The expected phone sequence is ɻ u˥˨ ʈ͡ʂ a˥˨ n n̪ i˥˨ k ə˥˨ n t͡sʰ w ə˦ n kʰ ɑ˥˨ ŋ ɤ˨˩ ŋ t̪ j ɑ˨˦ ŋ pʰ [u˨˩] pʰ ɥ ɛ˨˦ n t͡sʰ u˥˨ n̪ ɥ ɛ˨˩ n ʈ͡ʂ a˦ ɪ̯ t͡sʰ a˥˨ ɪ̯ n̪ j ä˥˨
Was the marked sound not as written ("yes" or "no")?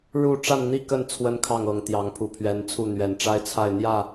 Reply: no